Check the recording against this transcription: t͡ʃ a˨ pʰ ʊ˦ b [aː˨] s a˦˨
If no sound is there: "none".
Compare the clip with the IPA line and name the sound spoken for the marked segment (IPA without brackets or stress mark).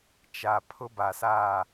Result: a˨